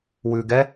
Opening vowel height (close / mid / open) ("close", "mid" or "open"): close